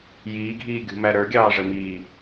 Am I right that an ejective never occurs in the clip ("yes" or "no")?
yes